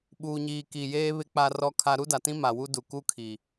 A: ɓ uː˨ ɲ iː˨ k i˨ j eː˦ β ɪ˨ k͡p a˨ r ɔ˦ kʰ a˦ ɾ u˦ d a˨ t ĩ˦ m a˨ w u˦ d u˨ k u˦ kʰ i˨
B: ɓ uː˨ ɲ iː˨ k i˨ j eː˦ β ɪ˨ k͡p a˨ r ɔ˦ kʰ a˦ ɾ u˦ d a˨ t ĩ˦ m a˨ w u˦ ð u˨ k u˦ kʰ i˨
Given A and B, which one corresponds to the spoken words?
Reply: A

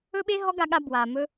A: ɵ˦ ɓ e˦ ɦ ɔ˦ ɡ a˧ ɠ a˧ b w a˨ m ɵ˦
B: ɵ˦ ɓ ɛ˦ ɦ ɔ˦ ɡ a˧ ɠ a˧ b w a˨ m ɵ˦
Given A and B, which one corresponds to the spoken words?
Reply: A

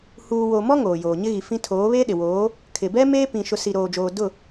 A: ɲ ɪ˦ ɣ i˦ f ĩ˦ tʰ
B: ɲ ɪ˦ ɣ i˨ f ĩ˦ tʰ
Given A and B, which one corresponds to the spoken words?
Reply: B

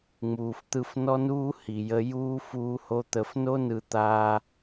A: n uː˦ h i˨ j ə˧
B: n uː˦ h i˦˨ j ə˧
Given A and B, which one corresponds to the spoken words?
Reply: A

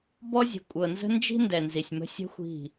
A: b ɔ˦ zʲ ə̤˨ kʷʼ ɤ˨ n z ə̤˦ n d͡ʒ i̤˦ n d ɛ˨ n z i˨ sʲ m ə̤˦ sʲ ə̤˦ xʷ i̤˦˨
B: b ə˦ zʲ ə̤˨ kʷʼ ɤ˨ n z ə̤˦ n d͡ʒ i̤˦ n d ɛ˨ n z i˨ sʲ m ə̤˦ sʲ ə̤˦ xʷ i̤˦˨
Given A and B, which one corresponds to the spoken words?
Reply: A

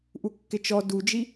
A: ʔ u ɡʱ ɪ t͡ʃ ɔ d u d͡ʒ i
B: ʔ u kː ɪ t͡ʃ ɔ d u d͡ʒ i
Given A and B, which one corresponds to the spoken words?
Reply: B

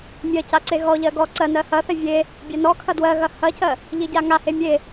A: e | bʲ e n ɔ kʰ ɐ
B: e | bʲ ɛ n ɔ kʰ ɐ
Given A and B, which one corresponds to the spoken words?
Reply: B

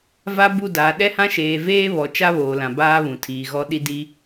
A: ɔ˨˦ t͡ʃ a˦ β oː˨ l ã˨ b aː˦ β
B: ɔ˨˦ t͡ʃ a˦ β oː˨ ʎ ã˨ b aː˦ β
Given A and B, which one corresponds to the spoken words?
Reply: A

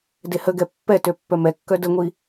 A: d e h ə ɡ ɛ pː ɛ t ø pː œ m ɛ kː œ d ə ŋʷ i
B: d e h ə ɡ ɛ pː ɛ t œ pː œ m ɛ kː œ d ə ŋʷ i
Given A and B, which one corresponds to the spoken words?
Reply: A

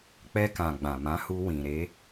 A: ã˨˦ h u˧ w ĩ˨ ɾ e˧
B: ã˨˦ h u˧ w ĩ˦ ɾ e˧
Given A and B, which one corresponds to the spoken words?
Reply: A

